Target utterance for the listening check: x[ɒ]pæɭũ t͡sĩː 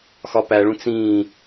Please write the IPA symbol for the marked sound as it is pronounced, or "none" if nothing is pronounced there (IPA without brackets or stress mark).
ɒ